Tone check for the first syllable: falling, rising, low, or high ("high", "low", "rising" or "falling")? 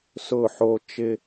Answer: falling